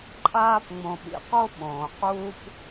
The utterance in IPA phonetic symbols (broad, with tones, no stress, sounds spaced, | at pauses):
ǃʼ aː˦ p ŋ͡m õ˨ ɓ ḭ˩ q o˥ ɓ õː˩ q uː˦ p